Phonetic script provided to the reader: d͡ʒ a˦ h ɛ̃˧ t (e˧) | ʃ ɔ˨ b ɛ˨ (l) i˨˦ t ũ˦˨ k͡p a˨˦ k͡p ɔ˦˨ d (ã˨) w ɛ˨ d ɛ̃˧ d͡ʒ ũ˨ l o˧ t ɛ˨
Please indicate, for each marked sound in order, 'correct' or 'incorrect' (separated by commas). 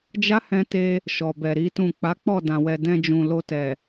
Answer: correct, incorrect, correct